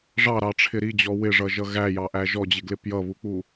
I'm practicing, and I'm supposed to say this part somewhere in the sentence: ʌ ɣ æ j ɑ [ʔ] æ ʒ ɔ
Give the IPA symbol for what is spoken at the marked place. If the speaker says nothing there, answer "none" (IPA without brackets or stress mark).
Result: ʔ